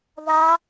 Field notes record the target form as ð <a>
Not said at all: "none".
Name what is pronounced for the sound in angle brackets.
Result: a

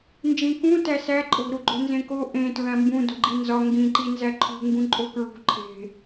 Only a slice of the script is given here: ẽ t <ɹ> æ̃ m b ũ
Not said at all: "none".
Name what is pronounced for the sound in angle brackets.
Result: ɹ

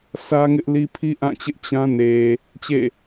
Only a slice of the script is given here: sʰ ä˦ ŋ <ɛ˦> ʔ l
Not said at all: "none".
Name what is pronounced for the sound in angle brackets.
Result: ɪ˦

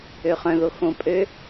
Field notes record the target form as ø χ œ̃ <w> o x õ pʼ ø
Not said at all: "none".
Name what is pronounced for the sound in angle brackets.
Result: ð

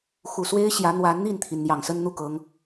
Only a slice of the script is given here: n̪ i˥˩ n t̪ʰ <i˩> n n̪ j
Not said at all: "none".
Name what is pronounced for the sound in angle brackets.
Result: i˩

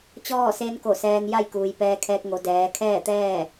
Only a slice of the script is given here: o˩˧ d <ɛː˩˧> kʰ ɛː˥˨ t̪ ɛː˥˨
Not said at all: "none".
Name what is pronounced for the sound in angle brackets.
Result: ɛː˩˧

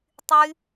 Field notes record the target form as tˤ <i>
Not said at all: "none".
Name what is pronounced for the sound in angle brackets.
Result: y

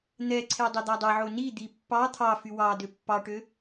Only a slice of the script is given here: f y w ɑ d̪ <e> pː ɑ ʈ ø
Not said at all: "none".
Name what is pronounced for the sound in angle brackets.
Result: ø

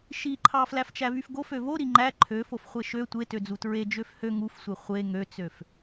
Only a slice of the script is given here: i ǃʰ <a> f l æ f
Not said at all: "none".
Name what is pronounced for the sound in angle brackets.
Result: ɑ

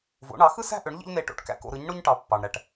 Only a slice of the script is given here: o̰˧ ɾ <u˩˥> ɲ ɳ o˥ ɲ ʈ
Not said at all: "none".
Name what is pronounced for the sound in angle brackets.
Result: ɯ˩˥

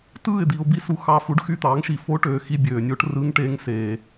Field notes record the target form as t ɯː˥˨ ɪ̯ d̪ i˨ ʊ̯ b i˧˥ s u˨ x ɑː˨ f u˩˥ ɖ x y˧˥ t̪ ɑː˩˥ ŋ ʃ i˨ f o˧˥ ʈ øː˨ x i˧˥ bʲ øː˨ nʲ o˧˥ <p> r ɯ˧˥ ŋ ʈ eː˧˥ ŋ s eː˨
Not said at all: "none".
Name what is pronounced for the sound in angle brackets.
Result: ʈ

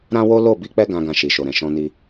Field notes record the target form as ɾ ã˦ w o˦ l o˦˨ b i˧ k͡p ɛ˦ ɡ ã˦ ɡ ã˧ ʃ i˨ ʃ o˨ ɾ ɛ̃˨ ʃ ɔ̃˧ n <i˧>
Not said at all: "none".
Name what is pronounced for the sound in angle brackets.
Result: i˧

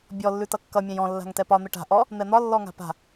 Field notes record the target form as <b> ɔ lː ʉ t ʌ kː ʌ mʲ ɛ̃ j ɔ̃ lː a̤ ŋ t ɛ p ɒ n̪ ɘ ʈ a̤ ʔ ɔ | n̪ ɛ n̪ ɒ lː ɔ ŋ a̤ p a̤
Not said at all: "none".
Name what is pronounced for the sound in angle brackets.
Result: bʲ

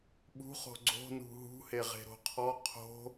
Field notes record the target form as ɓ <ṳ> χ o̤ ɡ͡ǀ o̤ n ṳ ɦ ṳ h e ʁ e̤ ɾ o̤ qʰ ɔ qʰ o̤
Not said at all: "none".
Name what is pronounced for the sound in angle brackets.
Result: ṳ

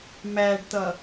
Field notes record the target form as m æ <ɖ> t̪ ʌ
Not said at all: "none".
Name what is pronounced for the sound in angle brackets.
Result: ɖ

